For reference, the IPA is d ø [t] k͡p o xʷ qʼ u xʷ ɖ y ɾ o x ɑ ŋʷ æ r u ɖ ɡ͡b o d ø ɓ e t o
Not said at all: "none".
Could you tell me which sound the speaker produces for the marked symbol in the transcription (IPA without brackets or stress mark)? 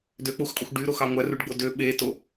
none